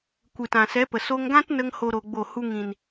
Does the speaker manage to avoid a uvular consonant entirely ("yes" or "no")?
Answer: yes